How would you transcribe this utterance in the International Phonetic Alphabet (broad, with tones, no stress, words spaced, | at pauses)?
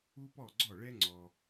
u˥pɔ˥˩ɡ͡ǀɔ˥˩ɭɛ˥ ŋ͡ǀɔ˧